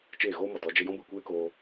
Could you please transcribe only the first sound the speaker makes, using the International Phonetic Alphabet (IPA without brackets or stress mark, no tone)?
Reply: t͡ʃ